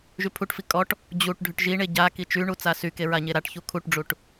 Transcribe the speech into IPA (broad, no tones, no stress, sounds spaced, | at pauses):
ʒ y pʰ u ʈ f i kʼ ɔ ʈ | d͡ʑ u ʈ ɖʱ y ʈ ʒ i ɳ e ɟ a k i t͡ʃ y ɳ u t͡s a s y k e ɹ a ɲ e ɾ a ʈ ç u kʰ u ʈ ɖ͡ʐ u ʈ